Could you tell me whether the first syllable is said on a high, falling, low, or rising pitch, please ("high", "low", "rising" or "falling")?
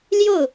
falling